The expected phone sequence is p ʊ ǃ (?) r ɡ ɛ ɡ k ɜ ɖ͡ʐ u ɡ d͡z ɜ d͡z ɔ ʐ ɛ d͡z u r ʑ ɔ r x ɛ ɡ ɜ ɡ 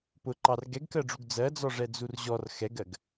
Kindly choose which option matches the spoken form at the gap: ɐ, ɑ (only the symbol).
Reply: ɑ